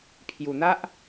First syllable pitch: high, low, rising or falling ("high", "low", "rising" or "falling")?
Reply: low